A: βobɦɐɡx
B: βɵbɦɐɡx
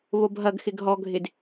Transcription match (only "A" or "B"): A